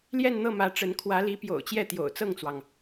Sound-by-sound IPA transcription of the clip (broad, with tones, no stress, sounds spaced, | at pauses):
l j ɛ˥˧ n n̪ ɤ˥˩ m ä˧˥ ʈ͡ʂ ə˧˥ n kʰ w ä˧˥ l i˧˥ p j o̰˨˩ ʊ̯ t͡ɕ j ɛ˥˩ t̪ j o̰˨˩ ʊ̯ t͡s ɤ˥˩ ŋ t͡s w ɑ˩ ŋ